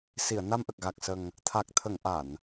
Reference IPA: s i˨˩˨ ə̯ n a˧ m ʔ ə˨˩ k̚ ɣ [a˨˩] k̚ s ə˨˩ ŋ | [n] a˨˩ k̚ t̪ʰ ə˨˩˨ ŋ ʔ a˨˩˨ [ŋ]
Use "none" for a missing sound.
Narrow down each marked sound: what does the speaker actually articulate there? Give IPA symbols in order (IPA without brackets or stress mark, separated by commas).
a˨˩, t̪ʰ, n